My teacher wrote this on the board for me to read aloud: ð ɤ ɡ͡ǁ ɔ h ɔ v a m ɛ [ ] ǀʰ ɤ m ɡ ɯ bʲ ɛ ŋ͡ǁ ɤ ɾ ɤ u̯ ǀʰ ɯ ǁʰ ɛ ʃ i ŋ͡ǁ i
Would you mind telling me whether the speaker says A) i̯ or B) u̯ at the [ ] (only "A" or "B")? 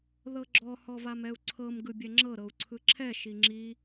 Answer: B